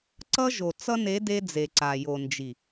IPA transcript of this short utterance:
ǀ ʌ˦ ʒ o˨ t͡s ʌ˦ n e˨˦ d e˦ d͡z e˨ ǀ a˨ j o˨ n d͡ʒ i˨

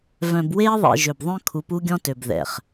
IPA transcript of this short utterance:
v œ̃˨ b w eː˦ ðˤ ḛ˨ ʒ ø˨ b ðˤ œ̃˦ kʰ u˨˦ p u˦ ɡʲ ɔ̃˦ t ø˨ b ð ɛ̰˨ χ

